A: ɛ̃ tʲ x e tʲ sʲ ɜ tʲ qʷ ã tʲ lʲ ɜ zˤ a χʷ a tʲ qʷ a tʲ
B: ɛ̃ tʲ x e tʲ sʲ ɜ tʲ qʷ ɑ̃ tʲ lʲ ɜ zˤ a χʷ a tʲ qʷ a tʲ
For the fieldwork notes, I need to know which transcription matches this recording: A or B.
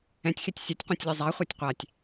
A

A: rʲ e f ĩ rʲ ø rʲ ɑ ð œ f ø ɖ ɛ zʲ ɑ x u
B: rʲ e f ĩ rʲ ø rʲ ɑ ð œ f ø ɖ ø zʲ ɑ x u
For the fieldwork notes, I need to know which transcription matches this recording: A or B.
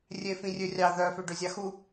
B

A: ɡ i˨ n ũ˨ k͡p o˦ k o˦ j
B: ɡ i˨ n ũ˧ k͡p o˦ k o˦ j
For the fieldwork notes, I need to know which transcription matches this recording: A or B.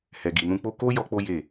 B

